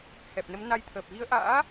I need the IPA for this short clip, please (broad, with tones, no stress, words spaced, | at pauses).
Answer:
hɛ˨˩p̚nə˨˦mna˧jt̪ʰəː˨˩p̚ ɣi˨˦ə̯ʔa̰ː˧˥